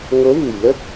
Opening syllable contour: rising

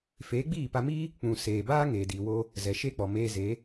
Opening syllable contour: rising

